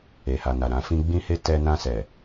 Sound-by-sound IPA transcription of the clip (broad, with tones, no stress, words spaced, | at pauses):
e˨ha˨na˨ ɾã˧fĩ˦ ɡ͡bĩ˦he˦ tɛ˧ nã˧sɛ˨